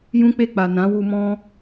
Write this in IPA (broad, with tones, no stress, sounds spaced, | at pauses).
j ũ˦ k͡p e˦˨ k͡p a˨ n ã˨˦ w u˧ m ɔ̃˦